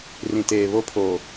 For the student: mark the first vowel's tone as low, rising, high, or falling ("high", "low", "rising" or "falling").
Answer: low